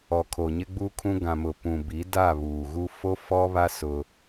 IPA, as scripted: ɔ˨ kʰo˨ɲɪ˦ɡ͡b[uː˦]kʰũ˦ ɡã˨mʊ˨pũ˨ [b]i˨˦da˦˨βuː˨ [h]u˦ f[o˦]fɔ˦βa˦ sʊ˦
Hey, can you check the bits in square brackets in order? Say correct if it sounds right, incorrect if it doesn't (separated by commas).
incorrect, correct, incorrect, correct